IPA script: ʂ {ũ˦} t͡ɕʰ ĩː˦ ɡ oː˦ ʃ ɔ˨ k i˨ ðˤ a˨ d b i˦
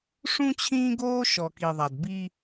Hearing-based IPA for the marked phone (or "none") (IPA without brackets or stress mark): ũ˦